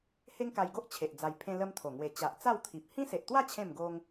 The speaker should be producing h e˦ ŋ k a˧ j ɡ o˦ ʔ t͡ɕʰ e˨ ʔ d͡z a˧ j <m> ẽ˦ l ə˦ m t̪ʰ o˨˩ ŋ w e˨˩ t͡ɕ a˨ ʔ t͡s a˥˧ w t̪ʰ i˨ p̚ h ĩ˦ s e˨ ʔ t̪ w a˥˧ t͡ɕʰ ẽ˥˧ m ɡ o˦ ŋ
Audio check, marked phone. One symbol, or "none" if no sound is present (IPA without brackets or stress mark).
pʰ